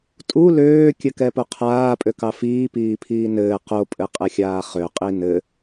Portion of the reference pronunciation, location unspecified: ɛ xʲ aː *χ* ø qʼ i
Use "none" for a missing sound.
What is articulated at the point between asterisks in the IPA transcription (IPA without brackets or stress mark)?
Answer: χ